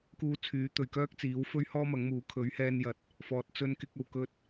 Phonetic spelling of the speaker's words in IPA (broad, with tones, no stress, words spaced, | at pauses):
kuː˧t͡sʰyː˨˥ t̪ɵ˨ɥkœː˥k̚t͡siː˨˥wfɵ˥ɥ hɔː˥mɐ˨˥ŋmuː˨˥ kʰɵ˨˥ɥhɛː˧njɐ˨t̚ | fɔː˨t̚t͡sɵ˧nkɪ˧k̚ ɐ˨w kɵ˧t̚